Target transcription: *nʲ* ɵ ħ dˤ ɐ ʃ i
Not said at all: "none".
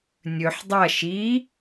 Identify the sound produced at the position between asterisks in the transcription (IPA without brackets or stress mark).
nʲ